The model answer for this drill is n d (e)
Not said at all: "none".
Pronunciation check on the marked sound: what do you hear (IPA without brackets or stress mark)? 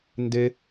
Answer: e